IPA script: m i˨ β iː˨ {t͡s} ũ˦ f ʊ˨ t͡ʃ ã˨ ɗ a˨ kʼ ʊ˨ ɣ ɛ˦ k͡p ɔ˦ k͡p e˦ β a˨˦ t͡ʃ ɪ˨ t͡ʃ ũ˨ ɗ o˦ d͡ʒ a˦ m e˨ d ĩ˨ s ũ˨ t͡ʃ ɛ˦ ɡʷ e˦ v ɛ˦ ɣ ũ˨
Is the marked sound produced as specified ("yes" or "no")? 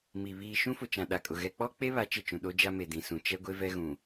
no